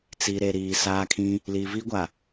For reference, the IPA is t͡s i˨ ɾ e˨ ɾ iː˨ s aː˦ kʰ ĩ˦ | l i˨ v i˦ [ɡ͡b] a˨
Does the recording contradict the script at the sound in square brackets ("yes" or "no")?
yes